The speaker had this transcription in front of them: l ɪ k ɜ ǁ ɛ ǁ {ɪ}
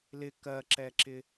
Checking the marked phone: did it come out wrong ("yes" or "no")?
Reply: no